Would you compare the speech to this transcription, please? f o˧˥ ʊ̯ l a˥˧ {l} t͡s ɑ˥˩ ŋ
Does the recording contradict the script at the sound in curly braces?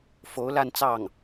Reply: yes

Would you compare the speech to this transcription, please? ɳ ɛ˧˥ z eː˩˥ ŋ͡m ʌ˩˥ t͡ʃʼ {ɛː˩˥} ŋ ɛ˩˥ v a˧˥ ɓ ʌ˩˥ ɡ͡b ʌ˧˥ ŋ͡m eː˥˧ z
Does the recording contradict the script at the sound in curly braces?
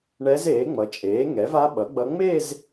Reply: yes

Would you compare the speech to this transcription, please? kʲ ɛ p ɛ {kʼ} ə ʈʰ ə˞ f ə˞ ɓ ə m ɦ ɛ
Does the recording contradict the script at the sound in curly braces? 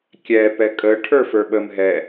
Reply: no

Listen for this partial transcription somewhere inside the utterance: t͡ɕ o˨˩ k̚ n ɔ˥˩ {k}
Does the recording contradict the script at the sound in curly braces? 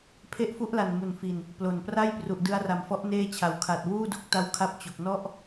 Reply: yes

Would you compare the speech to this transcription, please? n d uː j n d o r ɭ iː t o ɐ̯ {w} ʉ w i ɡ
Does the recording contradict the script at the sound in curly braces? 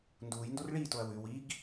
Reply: no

